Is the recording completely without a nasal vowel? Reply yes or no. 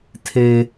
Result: yes